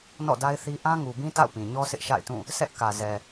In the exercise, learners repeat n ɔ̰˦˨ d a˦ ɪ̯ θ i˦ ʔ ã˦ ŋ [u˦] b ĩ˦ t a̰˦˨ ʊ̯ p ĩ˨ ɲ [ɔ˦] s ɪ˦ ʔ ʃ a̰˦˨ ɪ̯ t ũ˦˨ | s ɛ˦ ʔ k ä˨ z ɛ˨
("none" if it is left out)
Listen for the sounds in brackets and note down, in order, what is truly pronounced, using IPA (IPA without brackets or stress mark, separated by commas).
u˨, ɔ˦